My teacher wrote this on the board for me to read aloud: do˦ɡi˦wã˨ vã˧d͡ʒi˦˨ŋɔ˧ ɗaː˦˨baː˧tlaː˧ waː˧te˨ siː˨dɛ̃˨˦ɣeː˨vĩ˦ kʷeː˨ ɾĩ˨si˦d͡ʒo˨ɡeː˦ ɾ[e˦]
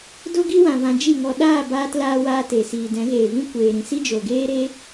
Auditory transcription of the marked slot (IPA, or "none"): e˦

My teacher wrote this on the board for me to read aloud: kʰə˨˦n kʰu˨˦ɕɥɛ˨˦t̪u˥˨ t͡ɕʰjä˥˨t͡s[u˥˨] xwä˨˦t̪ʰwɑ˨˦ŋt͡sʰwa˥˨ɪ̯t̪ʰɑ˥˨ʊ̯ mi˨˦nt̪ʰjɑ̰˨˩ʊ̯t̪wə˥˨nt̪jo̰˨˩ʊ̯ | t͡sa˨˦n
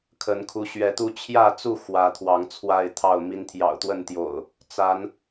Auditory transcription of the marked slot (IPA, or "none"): u˥˨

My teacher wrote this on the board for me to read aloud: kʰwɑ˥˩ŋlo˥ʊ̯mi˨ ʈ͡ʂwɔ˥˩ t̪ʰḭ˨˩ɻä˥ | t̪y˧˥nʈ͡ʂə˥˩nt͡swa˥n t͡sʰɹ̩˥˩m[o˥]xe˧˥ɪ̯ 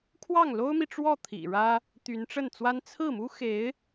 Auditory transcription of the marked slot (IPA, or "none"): u˥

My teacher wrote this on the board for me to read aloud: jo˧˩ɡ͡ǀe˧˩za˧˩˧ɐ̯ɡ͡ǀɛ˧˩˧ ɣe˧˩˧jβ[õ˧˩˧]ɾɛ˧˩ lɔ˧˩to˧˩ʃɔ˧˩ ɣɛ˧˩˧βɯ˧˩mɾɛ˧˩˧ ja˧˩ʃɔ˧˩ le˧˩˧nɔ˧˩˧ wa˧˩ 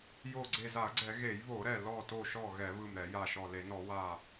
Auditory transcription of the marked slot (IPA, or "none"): o˧˩˧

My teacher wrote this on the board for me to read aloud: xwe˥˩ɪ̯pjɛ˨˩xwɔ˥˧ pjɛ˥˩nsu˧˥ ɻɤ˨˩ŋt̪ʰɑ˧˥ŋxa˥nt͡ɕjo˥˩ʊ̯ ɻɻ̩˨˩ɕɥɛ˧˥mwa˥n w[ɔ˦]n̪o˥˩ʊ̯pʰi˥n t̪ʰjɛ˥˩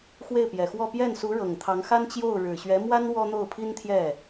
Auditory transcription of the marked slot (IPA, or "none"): ɔ˥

